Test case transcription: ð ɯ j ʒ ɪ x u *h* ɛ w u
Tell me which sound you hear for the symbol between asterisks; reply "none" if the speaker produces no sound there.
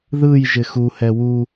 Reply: h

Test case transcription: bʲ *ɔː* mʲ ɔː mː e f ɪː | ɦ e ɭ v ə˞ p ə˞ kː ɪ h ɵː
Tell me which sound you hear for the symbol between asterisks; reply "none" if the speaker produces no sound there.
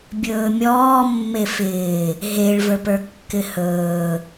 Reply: ɵː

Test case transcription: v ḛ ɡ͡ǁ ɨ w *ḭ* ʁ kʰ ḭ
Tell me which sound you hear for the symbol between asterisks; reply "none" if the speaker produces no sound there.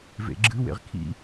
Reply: ḛ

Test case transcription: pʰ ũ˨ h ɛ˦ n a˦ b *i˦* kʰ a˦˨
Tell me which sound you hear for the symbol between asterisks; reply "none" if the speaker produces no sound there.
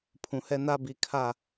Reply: i˨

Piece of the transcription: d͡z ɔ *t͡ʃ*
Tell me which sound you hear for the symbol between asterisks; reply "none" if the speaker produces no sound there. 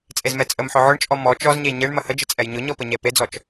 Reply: t͡ʃ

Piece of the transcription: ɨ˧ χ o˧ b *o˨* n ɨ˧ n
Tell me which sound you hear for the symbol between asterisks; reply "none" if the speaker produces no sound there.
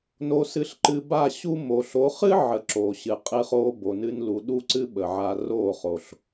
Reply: o˨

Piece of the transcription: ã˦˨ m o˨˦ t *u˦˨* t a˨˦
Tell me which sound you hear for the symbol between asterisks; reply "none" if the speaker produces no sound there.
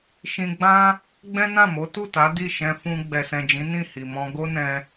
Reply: u˦˨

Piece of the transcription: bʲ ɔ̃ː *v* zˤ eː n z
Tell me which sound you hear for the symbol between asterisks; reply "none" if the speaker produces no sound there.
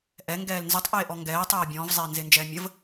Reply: v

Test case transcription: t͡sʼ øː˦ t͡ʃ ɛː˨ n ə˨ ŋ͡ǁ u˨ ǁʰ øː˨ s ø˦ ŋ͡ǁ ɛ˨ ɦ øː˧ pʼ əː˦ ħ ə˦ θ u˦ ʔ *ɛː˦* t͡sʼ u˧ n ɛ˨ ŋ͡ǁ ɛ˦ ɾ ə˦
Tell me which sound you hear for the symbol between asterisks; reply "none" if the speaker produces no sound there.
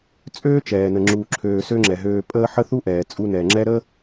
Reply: ɛː˨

